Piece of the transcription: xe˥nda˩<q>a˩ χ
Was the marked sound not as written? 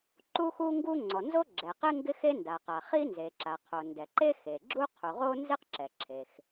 no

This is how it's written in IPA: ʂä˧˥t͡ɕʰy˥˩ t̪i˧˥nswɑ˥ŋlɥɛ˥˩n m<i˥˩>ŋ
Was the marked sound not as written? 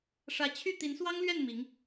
yes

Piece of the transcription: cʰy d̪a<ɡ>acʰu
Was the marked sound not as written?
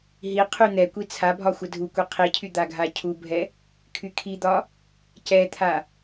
yes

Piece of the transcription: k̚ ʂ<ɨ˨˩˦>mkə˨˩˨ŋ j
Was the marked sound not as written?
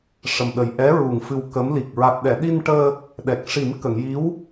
yes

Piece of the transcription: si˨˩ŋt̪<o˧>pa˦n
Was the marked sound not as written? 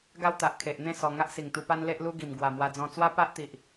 yes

